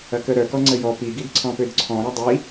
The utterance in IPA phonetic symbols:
ɐ k ə ɾ œ k ɔ ŋ͡ǀ ə j ɔ p i ɡ i d ǀʰ ɔ̃ p ø d ǀʰ ɔ̃ ɾ ɐ dˤ i

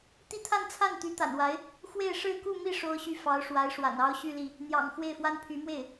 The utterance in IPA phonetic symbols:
t̪ i˥˧ t̪ʰ a˥˧ n t͡sʰ a˥˩ n t̪ y˧˥ t̪ a̰˨˩ n w a˧˥ ɪ̯ | x w e˥˧ ɪ̯ ʂ ɻ̩˥˧ k u˥˧ m i˥˩ ʂ o˥ ʊ̯ ɕ y˥˩ f ɑ˧˥ ʊ̯ ʂ w a˧˥ ɪ̯ ʂ w a̰˨˩ n ɑ˥ ʊ̯ ɕ y˥˧ l i˥˩ | n̪ j ɑ̰˨˩ ŋ x w e˥˩ ɪ̯ f w a˥ n pʰ y˧˥ m w e˥˩ ɪ̯

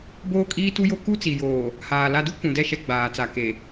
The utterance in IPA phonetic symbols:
b oː˦ kʼ iː˦ t u˦ j o˦ k u˦ t͡s i˨ j oː˨ | h aː˨ l a˨ d u˦ kʷ ũ˨ d ɛ˦˨ ʃ ɛ˦ ɡ͡b aː˨ t͡s a˨ k e˨

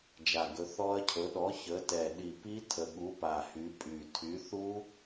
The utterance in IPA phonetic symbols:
d͡ʒ a˨˩ ɡ ɵ˨˦ θ ɔ˦˥ ɐ̯ cʰ ɵ˨˦ ɗ ɔ˨˦ ç ə˨˦ t ɛ˨˩ ɗ i˨˩ p i˦˥ tʰ ə˨˩ ɠ u˨˦ p a˨˩ h y˨˦ pʼ y˨˩ tʰ y˨˦ θ u˦˥

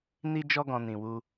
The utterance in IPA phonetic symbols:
n i˦ d͡ʒ ɔ˦ ɡ ɔ̃˧ n ĩ˨ w u˧

